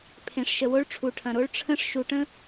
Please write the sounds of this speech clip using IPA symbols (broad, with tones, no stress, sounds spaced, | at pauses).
pʰ ẽ˨ ʂ ʃ ə˨ w o˦ ɭ ʈ͡ʂʰ u˨ ʈʰ ɐ̃˨ ɾ o˦ ɭ ʈ͡ʂʰ ə̃˦ ʂ ʃ u˨ ʈ ə̃˦